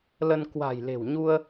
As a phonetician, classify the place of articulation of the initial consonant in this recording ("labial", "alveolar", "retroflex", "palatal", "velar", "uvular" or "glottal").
alveolar